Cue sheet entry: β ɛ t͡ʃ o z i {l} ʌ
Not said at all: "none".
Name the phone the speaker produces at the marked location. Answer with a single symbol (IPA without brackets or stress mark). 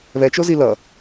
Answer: l